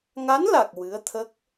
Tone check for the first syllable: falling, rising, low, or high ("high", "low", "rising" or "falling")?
rising